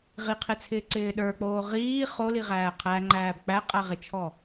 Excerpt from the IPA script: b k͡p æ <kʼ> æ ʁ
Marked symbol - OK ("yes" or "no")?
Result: no